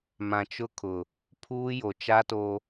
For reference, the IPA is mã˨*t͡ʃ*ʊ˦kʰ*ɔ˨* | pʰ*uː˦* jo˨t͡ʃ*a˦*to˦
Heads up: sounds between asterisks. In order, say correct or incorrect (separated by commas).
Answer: correct, incorrect, correct, correct